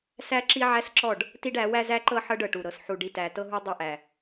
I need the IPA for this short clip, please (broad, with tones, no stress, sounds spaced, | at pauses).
s æ˦ ǁ i˦ ʕ æ˦ s ǁ ɔ˦˨ ɖ | t i˦ ɖ æ˨˦ w æ˦ z æ˦ ǃ ɤ˦ ħ ɤ˦ ɖ ɤ˨ ʈ u˨ ɾ ɤ˨ s ħ u˨ ɖ i˨ t æ˨ t ɤ˦ ɦ u˦ dˤ u˦ ʔ æ˨